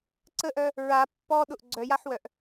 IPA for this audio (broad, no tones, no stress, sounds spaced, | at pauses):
ǀ ə ʔ œ | ɹ a pː ɔ ɗ ʊ ʔ ɡ͡ǀ œ j a ħ w œ ʔ